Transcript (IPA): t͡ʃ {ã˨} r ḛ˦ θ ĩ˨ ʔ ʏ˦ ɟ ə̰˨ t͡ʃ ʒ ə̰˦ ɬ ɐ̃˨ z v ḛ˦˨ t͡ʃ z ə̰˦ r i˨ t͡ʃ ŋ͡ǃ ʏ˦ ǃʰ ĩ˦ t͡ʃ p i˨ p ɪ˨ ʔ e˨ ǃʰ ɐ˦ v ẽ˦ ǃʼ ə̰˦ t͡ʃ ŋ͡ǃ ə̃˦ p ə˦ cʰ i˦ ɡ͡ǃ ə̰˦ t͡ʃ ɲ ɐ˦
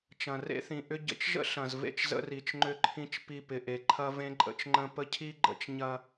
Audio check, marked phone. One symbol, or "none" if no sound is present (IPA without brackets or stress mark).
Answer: ɐ̃˨